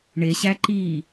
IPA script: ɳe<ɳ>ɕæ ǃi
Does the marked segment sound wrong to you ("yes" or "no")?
yes